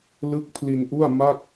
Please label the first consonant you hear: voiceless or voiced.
voiced